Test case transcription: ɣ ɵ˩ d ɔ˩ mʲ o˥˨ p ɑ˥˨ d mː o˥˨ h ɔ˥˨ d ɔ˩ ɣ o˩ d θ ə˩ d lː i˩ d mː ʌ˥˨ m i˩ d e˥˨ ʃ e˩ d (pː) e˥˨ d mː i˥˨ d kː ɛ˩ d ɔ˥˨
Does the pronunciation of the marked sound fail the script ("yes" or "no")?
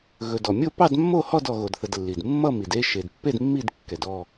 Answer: no